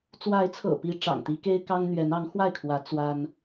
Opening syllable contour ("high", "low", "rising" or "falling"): rising